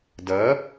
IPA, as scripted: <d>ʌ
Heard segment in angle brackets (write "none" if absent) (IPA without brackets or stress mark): d